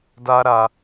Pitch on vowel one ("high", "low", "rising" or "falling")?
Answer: high